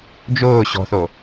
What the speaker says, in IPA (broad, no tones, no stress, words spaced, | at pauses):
d͡ʒʊː ɕɔ̤θo